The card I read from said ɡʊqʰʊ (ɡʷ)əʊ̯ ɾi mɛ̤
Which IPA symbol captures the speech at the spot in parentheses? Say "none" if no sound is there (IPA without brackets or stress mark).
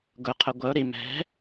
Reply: ɡʷ